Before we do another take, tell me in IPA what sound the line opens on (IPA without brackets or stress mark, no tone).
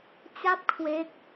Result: t͡ɕ